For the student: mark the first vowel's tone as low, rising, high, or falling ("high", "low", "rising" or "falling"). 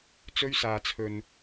high